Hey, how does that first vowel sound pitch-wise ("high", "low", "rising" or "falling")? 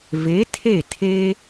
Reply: rising